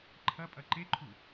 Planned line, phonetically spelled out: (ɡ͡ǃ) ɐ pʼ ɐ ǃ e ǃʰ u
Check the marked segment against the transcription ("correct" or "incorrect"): incorrect